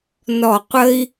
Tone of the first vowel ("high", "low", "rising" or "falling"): low